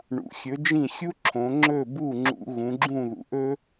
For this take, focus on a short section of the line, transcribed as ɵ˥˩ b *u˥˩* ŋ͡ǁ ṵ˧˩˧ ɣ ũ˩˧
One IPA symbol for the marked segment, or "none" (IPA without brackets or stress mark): u˥˩